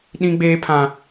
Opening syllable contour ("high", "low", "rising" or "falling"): high